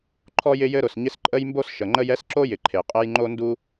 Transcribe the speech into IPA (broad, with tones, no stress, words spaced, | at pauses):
ǃʰɔ˥jɪ˥jɘ˥ɾʊ˩s ɲɪ˥s ǃʼə˥jmbo˥s ʃə˩ŋ͡ǃə˥j ɛ˥sǁo˥jɪ˩ ǃʰe˩ qʼɛ˥j ŋ͡ǃo˥ndu˥